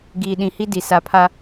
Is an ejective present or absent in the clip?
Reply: absent